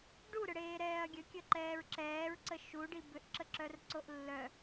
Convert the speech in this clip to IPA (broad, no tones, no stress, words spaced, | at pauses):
ɖuɾʏɽeːɾɛːɐ̯ ɡʲəkʲəǃɛːɹ ǁɛːɹǀə ʃuɖi bʏʔǁəǁœrǀoʔ lːœ